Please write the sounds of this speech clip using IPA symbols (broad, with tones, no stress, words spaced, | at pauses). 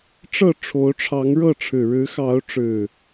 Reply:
ʈ͡ʂɤ˥˨ ʈ͡ʂʰo˨˦ʊ̯ʈ͡ʂʰɑ˨˦ŋɻɤ˥˨ʈ͡ʂʰɻ̩˨˩ ɻɻ̩˨˦xɑ˨˦ʊ̯ʈ͡ʂɻ̩˨˩